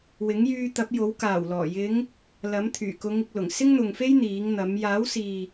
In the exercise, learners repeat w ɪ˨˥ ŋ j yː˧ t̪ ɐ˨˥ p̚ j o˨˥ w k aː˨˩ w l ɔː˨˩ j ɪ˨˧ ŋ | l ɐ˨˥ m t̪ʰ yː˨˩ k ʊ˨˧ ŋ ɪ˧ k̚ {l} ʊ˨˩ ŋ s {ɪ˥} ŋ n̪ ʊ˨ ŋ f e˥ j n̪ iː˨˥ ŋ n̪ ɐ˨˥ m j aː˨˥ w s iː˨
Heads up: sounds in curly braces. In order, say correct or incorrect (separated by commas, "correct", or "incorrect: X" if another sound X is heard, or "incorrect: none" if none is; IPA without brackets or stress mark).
correct, correct